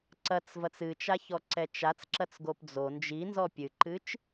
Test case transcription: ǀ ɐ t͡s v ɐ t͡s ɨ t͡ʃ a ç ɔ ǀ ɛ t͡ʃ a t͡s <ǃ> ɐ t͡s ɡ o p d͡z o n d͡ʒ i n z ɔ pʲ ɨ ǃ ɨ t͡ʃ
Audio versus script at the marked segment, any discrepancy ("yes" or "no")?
yes